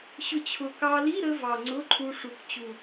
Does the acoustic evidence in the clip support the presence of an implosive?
no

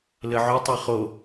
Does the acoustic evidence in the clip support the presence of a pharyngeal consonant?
yes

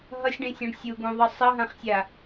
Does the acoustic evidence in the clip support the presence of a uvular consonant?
yes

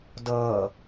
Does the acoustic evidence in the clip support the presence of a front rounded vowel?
no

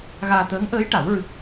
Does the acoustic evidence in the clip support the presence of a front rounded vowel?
no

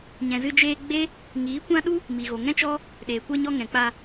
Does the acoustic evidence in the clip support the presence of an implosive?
yes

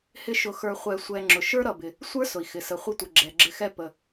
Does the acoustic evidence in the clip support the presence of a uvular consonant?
yes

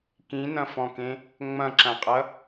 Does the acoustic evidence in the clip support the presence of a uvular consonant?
yes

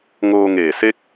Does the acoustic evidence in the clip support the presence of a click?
no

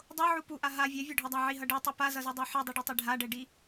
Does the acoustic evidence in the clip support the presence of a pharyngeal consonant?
yes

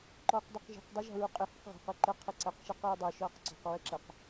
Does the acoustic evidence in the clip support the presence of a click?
yes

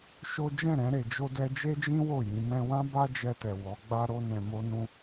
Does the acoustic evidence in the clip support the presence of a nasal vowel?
yes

